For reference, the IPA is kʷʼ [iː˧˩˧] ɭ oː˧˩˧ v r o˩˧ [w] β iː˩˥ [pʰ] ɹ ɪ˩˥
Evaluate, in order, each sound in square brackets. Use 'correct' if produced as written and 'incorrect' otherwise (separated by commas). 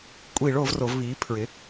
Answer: correct, incorrect, correct